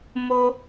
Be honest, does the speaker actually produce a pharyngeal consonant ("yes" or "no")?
no